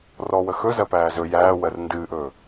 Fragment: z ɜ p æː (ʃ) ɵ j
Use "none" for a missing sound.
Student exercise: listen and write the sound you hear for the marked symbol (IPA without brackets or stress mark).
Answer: z